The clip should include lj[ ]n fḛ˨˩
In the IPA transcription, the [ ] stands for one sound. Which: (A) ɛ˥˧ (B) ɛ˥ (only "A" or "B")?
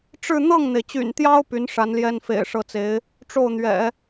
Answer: B